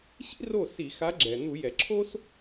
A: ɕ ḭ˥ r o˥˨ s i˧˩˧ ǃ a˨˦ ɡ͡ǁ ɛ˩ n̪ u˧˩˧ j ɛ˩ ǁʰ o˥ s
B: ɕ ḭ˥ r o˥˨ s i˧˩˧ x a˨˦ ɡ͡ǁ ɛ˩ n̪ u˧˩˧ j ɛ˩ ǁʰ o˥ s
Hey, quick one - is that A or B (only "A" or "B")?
B